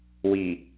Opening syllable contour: low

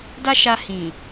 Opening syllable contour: high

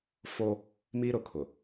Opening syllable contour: high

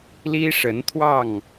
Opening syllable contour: high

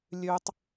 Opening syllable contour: low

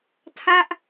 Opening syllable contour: falling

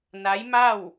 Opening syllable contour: rising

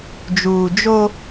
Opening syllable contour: low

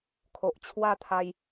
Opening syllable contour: low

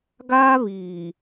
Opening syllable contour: high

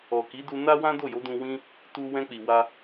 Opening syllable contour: low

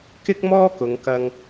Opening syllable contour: high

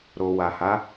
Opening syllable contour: low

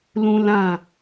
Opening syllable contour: high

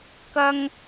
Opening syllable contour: high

